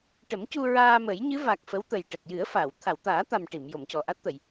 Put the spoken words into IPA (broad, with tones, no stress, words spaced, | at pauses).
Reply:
ʈə˨˩˦mcu˧ ɹaː˧mə˨˩˦jɲɨ˧˥ va˨˩k̚ fə˧˥wt̪ə˨˩jʈə˨˩k̚ jɨ˨˩˦ə̯ fa˨˩˨w t̪ʰa˨˩˨wt̪aː˨˩˦t̪a˨˩m ʈi˨˩˨m jo˨˩˨mcɔ˨˩ʔa˦˥t̚t̪ə˨˩˨j